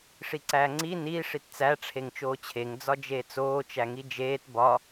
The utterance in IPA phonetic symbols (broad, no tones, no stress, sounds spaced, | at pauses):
ʂ i ǀ æː ŋ͡ǀ i n i ʂ i t t͡s æ ʈ͡ʂʰ e ŋ t͡ʃ oː t͡ɕʰ e ŋ d͡z ɒ d͡ʒ eː t͡s oː t͡ʃ æ ŋ i d͡ʒ eː t b ɒ